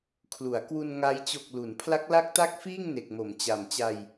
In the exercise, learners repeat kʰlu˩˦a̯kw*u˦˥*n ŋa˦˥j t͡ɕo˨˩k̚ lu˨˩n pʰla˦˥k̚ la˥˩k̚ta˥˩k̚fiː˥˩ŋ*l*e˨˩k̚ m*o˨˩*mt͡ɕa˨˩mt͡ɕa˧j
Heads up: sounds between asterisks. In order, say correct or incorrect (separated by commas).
incorrect, incorrect, incorrect